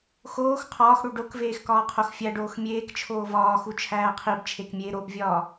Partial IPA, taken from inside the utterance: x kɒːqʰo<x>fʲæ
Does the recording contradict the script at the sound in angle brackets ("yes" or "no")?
no